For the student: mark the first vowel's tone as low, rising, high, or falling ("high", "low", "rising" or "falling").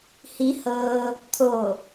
rising